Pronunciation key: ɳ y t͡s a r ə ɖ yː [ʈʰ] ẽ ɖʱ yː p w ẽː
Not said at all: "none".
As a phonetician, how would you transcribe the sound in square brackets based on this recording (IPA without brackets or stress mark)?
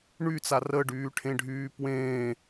ʈʰ